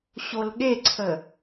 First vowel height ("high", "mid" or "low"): mid